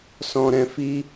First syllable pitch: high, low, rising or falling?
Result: low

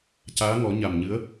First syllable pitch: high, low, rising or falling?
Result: rising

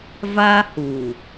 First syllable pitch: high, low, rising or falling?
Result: high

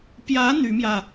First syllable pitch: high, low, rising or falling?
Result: rising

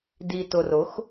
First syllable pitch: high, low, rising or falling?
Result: low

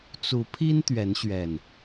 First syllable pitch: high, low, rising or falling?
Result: rising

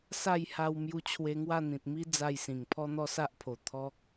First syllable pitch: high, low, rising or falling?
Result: falling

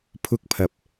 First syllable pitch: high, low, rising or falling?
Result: high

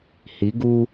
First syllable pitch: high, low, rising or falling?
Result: rising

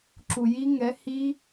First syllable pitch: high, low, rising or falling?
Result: low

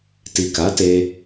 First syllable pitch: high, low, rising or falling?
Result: low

